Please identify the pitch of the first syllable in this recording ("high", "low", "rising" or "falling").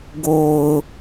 low